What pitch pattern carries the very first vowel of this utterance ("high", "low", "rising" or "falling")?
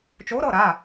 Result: rising